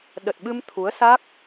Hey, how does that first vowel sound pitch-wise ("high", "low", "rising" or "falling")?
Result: low